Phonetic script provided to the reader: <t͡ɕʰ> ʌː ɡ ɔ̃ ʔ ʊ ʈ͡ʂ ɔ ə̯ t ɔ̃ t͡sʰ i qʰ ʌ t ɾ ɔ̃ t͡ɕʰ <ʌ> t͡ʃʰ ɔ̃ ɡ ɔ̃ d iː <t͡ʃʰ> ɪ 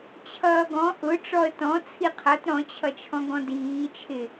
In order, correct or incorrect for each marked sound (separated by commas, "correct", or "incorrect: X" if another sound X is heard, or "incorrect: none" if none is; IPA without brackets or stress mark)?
correct, correct, correct